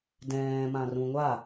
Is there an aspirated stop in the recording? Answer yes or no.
no